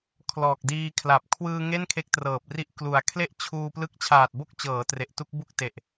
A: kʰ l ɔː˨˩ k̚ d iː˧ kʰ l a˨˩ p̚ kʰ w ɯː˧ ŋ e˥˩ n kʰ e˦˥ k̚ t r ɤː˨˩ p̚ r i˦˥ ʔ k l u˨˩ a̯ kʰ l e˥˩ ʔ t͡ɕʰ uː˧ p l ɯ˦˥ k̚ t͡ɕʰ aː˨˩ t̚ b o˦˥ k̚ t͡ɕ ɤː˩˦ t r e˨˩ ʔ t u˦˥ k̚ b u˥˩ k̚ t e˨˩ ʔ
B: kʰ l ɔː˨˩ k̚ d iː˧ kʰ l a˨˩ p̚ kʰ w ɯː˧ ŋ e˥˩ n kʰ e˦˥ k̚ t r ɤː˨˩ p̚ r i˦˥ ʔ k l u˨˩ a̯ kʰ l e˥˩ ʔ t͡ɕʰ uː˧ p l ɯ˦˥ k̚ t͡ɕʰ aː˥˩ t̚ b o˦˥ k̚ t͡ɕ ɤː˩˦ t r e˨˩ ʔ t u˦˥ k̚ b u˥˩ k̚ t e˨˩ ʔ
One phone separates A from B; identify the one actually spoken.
A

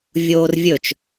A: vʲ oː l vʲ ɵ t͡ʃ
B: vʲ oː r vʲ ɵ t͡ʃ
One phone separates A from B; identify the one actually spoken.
B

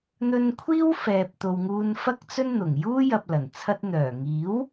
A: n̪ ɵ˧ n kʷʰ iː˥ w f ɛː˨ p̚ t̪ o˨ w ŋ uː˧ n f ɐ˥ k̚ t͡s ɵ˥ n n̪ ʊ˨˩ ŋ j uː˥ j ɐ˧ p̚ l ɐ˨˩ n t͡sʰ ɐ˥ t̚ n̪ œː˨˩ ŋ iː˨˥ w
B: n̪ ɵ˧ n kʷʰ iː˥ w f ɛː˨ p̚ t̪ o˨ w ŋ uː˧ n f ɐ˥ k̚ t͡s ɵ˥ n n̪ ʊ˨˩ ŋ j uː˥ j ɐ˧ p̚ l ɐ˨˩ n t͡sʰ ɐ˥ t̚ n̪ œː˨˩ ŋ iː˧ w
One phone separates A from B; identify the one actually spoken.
A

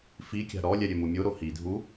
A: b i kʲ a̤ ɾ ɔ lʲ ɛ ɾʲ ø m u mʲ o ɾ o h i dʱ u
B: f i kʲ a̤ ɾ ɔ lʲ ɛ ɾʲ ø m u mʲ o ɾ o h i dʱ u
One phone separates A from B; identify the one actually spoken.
B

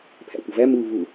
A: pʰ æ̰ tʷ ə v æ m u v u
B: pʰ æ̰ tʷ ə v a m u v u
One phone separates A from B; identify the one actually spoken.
A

